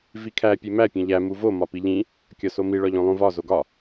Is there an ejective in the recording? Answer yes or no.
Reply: no